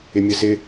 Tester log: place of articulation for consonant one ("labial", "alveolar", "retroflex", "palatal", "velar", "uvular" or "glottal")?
labial